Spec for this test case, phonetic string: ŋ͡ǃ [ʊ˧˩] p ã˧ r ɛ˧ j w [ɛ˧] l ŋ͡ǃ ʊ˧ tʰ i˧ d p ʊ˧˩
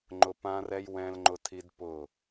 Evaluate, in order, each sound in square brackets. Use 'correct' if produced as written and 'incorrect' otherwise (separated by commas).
incorrect, incorrect